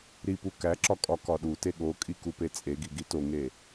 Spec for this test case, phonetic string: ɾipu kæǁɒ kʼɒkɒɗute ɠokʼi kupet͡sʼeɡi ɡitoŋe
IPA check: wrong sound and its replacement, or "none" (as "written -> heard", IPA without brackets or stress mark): none